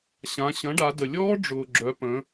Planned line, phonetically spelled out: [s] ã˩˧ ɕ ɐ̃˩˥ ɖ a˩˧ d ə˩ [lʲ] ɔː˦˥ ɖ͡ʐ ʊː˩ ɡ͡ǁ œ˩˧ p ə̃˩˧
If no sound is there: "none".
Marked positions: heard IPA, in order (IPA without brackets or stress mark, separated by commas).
ɕ, lʲ